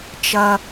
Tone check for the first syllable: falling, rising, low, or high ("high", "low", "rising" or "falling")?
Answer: low